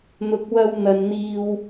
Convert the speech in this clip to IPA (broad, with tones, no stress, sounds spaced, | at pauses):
n̪ ʊ˨ k̚ w ɐ˧ w n̪ ɐ˨ n n̪ iː˧ w